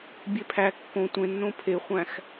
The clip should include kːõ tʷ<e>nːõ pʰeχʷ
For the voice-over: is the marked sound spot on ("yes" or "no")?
no